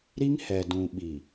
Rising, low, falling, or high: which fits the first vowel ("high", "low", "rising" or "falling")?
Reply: high